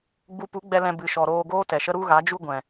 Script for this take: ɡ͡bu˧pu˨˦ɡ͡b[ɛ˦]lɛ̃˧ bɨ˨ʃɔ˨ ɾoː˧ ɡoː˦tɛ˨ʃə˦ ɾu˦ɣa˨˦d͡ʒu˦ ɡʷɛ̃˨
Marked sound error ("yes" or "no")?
yes